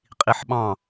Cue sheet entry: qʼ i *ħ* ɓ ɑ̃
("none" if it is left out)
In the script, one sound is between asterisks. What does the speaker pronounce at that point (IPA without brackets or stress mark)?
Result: ħ